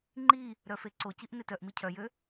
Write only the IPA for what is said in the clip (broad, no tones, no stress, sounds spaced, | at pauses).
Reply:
ŋ͡ǃ i | ɾ œ f e ǀ o c i ʔ n e t œ ʔ m i cʰ œ j ø